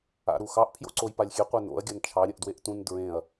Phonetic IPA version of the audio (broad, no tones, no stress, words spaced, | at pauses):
a̰ɾuxɑʔ pʰjo̰ǀojpalʲxʲe qʷɛno̰ɐ̯ ɡʲant͡ʃʰɑ ɾʲə̃ʔdweʔtũn dɹẽɐ̯